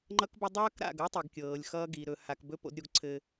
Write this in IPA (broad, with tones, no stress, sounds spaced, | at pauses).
ŋ͡ǃ ʌ˦ k b ə˦ dˤ ʌː˦ k ɾ a̰˦˨ ɡ ɤ˦ tˤ i˨ ɡ kʲ ɤː˨ lʲ x ʌː˦ ɡ i˨ ɾ ɵ˨ h a˨ k b ɵ˦ p o̰˦ d ɾʲ o˦ ɡ ǀʰ ɘ˦